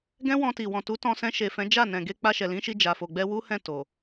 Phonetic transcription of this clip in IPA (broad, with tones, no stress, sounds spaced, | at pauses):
ɡ ɛ̃˦ w ɔ̃˧ t i˨ w ɔ̃˨ t u˨˦ t ɔ̃˧ s ɛ̃˧ ʃ e˨ f ɛ̃˨˦ d͡ʒ a˦˨ n ɛ̃˨ ɡ e˧ k͡p a˧ ʃ ɛ˨ l ĩ˨˦ ʃ i˧ d͡ʒ a˨ f o˨ ɡ͡b ɛ˧ w u˦ h ɛ̃˦˨ t o˨